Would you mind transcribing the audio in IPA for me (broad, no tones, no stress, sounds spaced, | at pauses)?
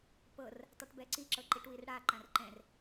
p ɤ r | tˤ ɛ ʈ b ɛ ǀ i ǁ ɤ ǃ i ʈ w i r ɽ a ǃ ã r ǃ ɛ̃ r